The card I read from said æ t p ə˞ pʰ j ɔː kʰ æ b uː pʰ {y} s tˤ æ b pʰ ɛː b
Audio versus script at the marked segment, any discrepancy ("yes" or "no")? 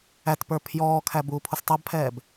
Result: yes